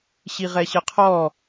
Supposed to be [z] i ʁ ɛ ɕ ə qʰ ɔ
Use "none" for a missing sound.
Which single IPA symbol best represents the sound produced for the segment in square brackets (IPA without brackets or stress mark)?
ɕ